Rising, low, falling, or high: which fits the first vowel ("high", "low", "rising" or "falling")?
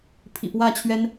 low